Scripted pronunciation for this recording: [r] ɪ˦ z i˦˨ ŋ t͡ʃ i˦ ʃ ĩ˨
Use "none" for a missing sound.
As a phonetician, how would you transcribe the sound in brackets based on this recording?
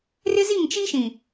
r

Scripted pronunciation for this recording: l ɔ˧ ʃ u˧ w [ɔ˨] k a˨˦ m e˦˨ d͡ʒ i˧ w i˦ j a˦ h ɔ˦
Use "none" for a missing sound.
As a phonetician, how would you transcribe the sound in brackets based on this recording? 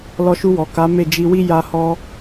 ɔ˨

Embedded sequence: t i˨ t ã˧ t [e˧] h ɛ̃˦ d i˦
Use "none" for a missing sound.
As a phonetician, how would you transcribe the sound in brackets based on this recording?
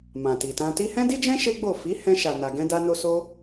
i˧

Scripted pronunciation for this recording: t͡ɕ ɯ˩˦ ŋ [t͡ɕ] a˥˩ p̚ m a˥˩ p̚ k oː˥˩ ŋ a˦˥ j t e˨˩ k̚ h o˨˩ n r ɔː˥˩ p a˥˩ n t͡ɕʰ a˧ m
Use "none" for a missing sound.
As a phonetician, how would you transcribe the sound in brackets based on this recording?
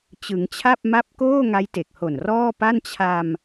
t͡ɕʰ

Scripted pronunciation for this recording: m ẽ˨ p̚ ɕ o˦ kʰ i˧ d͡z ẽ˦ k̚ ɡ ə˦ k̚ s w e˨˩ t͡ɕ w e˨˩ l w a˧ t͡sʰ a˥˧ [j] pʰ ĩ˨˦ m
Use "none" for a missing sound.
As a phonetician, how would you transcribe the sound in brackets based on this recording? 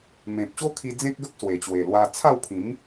w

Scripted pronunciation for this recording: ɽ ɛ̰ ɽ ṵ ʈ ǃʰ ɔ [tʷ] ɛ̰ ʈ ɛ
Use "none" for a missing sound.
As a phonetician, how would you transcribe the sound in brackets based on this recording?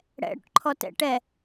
t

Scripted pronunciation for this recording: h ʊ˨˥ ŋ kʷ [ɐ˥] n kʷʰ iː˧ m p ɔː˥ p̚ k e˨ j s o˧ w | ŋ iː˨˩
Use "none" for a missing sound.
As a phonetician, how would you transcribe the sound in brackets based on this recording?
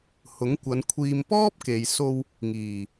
ɐ˨˧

